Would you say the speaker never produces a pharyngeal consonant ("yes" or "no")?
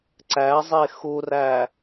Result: yes